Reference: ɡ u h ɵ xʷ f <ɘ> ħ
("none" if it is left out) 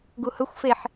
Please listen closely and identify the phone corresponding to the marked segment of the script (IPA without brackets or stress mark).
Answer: e